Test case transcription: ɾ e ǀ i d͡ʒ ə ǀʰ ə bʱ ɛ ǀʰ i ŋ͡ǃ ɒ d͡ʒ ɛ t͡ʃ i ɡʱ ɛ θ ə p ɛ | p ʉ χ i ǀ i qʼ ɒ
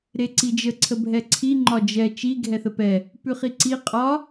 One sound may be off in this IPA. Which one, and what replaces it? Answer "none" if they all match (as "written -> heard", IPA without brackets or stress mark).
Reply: none